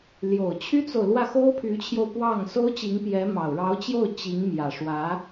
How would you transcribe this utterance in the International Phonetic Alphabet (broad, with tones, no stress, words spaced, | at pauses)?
ljo˨˩ʊ̯t͡ɕʰy˥t͡so˨ʊ̯ lwä˥˩xo˥ʊ̯pʰy˧˥t͡ɕʰjo˧ʊ̯ pwɑ˥˩ŋ so˥ʊ̯t͡ɕi˧˥ŋpjɛ˧˥mɑ˨˩ʊ̯ ɻɑ˧˥ʊ̯t͡ɕjo˥˩ʊ̯ t͡ɕi˧˥ŋmjä˨˩ʂwä˧˥